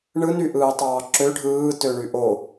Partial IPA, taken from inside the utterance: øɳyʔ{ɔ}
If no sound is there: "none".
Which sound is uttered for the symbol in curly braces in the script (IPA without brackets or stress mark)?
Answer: o